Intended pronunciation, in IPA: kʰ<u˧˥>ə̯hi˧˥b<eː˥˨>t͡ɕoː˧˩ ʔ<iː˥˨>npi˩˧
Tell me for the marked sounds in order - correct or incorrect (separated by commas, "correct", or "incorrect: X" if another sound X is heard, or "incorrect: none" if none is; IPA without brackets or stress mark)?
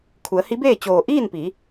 incorrect: u˩˧, correct, correct